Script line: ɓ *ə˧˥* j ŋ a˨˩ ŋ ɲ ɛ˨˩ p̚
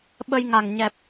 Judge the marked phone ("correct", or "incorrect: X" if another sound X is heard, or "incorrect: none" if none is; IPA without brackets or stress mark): incorrect: ə˧